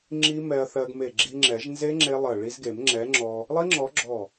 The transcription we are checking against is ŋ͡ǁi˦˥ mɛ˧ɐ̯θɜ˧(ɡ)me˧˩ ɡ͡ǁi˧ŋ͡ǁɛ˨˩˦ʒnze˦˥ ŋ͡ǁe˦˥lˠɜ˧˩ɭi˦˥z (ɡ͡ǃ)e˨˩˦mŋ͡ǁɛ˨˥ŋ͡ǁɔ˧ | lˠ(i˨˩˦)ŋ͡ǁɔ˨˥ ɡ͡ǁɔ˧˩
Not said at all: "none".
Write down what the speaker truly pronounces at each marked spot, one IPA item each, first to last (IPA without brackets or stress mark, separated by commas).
ɡ, ɡ, i˦˥